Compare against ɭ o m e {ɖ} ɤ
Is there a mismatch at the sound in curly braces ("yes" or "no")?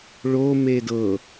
yes